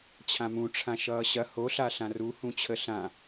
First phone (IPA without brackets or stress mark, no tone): t͡ɕʰ